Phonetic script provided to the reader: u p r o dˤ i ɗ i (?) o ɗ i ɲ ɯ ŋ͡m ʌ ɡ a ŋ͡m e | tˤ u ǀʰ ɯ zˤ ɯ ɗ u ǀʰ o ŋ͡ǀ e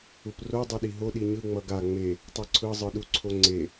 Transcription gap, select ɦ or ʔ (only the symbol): ɦ